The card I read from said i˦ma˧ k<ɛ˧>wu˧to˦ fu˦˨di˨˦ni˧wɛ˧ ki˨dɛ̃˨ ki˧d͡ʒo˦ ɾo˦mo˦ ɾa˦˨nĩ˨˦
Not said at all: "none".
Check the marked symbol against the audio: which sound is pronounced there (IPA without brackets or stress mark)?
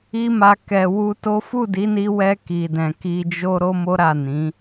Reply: ɛ˨